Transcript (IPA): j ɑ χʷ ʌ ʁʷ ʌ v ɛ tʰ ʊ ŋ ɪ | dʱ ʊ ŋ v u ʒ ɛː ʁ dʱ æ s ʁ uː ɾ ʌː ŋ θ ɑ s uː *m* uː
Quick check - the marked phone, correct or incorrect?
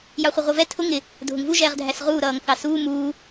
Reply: correct